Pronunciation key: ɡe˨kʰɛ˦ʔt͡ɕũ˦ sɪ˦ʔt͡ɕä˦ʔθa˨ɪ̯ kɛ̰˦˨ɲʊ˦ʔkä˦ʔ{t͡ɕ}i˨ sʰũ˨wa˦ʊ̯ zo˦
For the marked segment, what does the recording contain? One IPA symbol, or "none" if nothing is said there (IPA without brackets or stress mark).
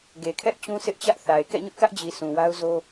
d͡ʑ